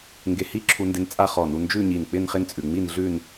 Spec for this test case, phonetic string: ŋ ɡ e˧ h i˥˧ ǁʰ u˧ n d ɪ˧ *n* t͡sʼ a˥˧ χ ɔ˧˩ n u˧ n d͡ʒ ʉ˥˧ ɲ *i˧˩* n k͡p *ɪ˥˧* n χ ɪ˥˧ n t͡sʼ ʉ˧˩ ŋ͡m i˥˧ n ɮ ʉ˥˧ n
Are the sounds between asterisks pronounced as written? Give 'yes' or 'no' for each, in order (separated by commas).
yes, yes, yes